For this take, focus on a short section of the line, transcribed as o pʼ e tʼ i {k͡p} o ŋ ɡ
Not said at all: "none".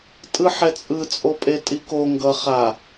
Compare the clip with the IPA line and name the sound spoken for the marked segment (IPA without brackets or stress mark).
k